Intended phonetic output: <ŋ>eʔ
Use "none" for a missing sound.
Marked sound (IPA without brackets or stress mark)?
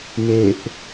m